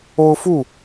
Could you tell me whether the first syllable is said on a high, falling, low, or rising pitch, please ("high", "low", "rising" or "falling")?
high